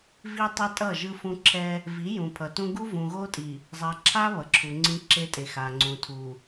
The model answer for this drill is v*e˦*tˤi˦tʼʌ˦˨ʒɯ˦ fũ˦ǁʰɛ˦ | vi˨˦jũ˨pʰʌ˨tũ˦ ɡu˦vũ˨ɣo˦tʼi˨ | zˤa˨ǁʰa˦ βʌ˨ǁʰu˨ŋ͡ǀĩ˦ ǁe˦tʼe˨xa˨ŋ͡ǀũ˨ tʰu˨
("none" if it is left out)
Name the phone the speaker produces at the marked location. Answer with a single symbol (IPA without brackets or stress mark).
i˦